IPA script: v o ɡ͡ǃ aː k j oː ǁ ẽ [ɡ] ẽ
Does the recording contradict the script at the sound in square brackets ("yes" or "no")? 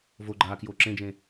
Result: yes